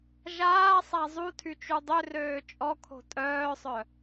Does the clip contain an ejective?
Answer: yes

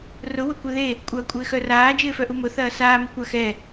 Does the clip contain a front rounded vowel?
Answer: yes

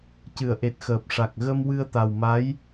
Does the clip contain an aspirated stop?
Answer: no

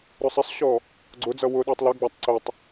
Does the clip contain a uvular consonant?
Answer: no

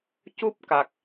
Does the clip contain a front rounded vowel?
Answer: no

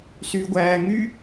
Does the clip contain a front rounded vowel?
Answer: yes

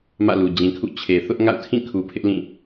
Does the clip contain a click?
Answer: no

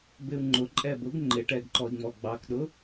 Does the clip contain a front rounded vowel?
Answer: no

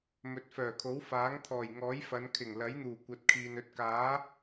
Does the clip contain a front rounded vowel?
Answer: yes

